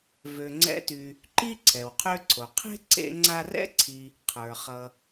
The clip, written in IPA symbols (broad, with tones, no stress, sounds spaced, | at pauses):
v ø˨ ŋ͡ǀ ɛ̰˦ t y˨ | ǃ i˥ ǀʰ ɛ˩ w qʰ ø˦ ǀʰ o˩ qʰ e̤˥ ǀ ḛ˦ ŋ͡ǀ a˦ r ɛ̰˥ ǀʰ i˨ | qʰ ə˞˩ χ ʌ˨